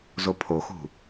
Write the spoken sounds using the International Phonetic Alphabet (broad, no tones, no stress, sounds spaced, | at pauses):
z o pʰ o x ṳ